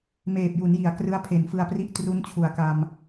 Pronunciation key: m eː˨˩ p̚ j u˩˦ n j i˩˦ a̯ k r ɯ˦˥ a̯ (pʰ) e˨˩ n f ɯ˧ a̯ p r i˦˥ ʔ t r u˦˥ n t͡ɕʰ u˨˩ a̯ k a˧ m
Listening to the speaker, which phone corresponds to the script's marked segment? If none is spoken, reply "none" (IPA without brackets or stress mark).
pʰ